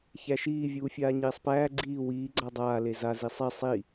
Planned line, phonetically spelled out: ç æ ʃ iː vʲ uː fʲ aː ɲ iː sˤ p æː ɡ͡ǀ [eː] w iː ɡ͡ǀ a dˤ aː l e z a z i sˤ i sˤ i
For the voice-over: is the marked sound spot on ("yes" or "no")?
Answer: no